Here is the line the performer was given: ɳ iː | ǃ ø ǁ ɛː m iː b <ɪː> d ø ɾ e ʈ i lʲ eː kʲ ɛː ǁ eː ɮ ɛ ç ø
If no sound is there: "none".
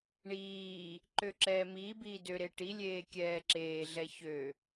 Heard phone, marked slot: iː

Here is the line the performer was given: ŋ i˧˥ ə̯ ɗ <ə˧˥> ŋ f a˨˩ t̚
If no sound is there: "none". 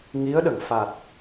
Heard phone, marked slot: ə˨˩˨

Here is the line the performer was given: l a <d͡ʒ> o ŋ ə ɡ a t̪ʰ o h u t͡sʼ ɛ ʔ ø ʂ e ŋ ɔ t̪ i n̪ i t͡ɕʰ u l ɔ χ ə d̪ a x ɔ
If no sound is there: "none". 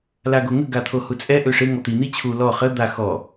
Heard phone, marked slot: ɡ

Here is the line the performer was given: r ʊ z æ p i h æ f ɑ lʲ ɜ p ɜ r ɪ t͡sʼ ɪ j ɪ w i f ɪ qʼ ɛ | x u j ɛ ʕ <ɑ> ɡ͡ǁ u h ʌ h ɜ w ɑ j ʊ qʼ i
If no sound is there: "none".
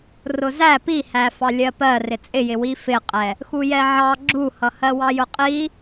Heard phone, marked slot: ɑ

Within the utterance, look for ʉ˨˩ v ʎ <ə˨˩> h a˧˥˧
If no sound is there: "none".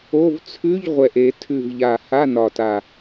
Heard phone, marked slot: a˨˩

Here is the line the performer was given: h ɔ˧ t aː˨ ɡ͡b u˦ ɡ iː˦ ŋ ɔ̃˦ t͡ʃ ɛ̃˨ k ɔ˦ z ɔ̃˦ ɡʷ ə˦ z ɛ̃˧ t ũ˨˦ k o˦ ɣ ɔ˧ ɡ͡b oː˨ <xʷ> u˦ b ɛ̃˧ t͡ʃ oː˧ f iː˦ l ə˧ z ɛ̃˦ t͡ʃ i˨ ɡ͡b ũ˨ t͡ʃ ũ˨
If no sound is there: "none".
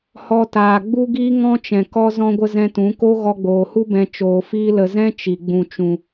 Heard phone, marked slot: h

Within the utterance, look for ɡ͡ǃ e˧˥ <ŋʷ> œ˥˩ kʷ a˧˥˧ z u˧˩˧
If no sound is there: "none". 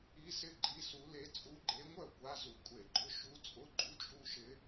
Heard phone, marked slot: ŋʷ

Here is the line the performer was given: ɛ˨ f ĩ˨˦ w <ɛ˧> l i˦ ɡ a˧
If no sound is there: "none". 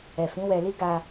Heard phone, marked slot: ɛ˧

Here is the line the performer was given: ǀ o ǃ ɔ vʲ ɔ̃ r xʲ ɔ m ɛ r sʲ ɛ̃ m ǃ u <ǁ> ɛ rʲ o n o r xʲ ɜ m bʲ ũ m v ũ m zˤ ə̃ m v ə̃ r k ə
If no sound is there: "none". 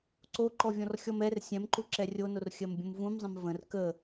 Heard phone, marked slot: ǁ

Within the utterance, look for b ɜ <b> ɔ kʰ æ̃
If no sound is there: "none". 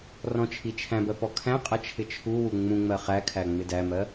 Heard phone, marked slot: p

